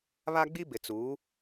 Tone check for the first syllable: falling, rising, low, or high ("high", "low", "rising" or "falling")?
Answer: high